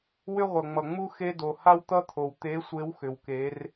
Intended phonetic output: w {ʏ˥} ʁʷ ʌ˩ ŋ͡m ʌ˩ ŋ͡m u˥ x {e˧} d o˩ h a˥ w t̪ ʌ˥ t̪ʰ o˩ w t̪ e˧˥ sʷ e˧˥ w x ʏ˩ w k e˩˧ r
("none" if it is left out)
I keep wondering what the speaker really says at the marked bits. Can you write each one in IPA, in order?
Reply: ʏ˥, e˧

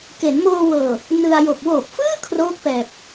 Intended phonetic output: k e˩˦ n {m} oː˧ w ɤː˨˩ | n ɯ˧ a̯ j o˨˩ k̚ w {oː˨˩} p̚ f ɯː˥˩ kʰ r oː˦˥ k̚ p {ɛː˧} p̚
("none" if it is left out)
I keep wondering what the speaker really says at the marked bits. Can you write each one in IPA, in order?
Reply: m, oː˨˩, ɛː˨˩

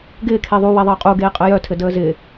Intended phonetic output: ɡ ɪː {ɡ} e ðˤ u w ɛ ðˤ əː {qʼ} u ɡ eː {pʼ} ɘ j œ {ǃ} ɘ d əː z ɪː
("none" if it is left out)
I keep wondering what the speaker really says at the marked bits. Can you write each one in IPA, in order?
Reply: kʰ, qʼ, qʼ, tʰ

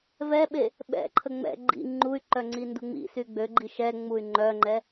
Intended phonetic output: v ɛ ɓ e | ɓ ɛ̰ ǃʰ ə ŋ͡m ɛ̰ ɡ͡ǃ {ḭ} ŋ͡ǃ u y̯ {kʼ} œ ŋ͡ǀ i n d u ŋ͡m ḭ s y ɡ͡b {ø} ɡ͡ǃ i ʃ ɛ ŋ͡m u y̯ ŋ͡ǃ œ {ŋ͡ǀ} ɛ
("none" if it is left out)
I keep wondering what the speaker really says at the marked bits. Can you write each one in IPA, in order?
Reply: ḭ, ǃ, ø, ŋ͡ǃ

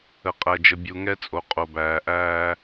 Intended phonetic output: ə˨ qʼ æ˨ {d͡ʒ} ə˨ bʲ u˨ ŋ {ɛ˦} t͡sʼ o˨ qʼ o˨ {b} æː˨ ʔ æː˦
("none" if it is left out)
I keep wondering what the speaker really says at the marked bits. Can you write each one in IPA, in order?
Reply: d͡ʒ, ɛ˦, b

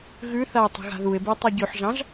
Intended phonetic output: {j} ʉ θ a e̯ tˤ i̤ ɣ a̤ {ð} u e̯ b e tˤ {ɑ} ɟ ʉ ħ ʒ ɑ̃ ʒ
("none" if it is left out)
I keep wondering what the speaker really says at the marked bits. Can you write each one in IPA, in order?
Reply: ɣ, ð, ɑ

